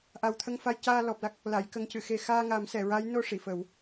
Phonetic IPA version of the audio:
ʔa˨˩wt̪ʰə˧ŋfa˧j caː˧ lɔ˨˩p̚la˦˥k̚ | la˨˩˨jkə˨˩˦ŋcɨ˨˩˨ xe˨˩xaː˧ŋa˨˩˦m sɛ˨˩˨ɹa˧˥jno˧ ʂi˨˩˨fə˨˩˦w

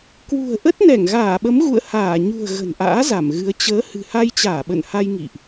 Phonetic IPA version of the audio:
kwṳ˨˩ə̯ʔə˦˥t̚nɛ˧˩ŋ ɣaː˧˩ɓə˨˦mɣṵ˧˨ə̯ haː˧˩ ɲṳ˨˩ə̯ ɣə̤˨˩nʔa̰ː˧˥ za˧˩mɣɨ˨˦ə̯ t͡ɕəː˨˦ hɨ̤˨˩ha˧jt͡ɕaː˧˩ ɓə̰˧˨nha˧jŋḭ˧˨ʔ

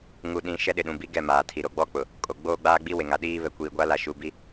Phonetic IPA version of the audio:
ŋu˨ɗĩ˨˦ ʃɛ˦ɗɪ˨ɗũ˨bi˦ ɡɛ˦˨ maː˨tʰi˨ ɾo˨ɡ͡bɔ˦k͡pʊ˨ | kʼo˨ ɡ͡boː˦ɡ͡baː˦ɡ͡bi˦we˨ ŋa˨ɗiː˦ βɛ˨kʷiː˨ɡʷa˦la˨ ʃu˨bi˦

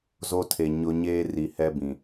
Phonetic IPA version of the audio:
zo˦tʰe˨ɲʊ˦ ɲeː˦ri˨hɛ˦bĩ˨

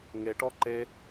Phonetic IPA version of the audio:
ŋeʈɔ ǃe

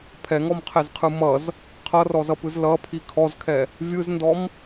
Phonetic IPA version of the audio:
pʰɛŋɔmqʰɛzqʰɯ mʌz | qʰʌrɔzʌpɯz lʌpʰi kʰɔzkʰɛ | vʲɯzndɔm

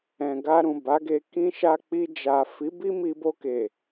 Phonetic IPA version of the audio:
ɛ̃˨ɡa˧ɾũ˨ ba˨˦ɡe˧ kĩ˧ʃa˧k͡pi˧d͡ʒa˨ fi˨˦bi˦mi˧ bo˧ke˨

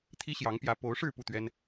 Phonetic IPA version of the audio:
t̪ʰi˥ɕjɑ˧˥ŋpjä˧˥ po˧˥ʊ̯ʂɻ̩˥˧ pu˥˩t̪ɥɛ˥n

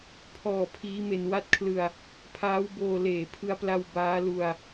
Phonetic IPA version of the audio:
pʰɔː˨˩ pʰiː˦˥me˧n wa˦˥t̚kʰlɯ˧a̯ | pʰaː˦˥wboː˧ leː˨˩pʰɯ˧a̯pla˧w baː˦˥lu˧a̯

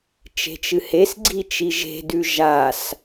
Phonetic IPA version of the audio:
t͡ʃe̤t͡ʃɨhesɡ͡ǀi t͡ʃiʒe̤dʉ ʒas

